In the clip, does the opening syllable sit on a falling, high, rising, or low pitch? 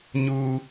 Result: high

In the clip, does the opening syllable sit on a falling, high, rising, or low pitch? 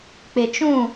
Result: low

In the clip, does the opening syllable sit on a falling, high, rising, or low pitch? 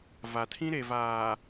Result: low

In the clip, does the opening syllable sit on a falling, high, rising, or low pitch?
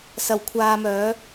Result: low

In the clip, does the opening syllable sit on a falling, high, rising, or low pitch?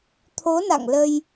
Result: rising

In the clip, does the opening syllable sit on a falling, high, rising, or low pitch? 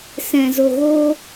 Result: low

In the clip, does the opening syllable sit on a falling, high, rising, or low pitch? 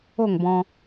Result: falling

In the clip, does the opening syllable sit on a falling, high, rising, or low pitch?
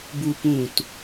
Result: high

